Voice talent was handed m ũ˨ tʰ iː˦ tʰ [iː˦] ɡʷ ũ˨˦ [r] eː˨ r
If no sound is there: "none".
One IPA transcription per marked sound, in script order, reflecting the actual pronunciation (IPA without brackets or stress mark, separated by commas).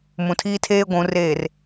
eː˦, r